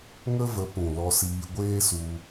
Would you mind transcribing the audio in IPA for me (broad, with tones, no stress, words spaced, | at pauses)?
ŋə˦və˨˦ pũ˨ lɔ˧siː˧ ɡʷeː˦su˧